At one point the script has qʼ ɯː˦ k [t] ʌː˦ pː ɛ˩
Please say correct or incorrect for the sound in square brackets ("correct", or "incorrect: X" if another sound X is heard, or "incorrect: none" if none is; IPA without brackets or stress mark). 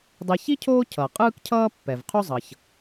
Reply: incorrect: cʰ